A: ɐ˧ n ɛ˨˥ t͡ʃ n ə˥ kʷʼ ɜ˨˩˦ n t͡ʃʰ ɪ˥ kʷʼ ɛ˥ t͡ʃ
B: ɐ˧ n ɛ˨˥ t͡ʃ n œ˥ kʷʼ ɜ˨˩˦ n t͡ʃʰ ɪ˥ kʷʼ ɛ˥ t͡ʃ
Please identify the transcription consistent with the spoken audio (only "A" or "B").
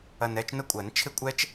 A